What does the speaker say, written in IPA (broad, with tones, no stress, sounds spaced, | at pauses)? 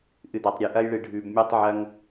ʔ ɨ˨ d̪ ɐ˨ tˤ ɾʲ e˨ ʔ ɐ˦ j ɭ ɨ˨ ɖʱ ʉ˨ b mʲ e˦ tˤ ʕ ɐ˦ ŋ